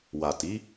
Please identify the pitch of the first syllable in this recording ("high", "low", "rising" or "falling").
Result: low